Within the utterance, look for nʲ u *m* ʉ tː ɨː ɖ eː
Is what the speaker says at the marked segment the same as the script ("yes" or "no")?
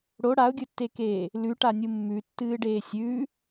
no